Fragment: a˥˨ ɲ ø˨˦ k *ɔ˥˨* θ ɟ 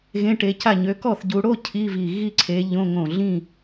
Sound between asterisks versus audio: correct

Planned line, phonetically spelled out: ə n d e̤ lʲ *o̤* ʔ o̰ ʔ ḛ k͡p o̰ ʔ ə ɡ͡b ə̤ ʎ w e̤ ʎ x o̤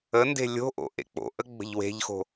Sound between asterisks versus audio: correct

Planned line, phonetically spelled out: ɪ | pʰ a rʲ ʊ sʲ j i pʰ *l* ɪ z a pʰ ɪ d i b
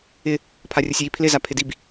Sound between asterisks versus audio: correct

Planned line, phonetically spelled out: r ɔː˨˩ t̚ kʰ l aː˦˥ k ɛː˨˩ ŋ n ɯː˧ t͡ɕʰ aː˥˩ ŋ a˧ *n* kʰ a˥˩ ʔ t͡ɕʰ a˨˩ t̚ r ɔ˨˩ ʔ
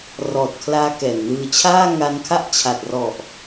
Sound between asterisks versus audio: correct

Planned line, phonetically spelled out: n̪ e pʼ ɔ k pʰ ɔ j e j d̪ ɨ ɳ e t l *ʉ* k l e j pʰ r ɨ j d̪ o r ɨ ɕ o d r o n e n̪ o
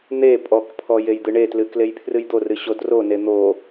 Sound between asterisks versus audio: incorrect: ɨ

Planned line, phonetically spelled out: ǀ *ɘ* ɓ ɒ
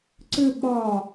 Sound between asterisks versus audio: correct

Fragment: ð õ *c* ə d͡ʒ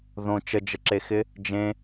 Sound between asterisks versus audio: incorrect: t͡ʃ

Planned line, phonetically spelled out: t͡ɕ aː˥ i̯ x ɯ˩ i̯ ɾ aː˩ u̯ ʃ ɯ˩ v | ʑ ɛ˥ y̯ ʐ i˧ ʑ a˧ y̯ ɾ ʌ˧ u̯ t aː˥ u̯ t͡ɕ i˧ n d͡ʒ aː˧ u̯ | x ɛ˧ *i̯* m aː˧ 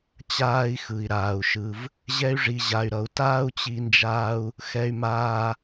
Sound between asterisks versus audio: incorrect: y̯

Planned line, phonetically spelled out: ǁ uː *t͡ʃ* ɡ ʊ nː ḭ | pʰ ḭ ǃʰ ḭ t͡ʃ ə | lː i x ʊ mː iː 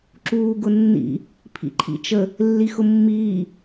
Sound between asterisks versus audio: incorrect: none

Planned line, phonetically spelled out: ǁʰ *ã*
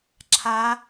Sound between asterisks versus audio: incorrect: a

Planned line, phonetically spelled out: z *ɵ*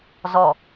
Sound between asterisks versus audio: incorrect: ɔ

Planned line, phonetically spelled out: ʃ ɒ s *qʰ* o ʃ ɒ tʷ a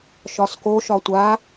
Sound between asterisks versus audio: incorrect: k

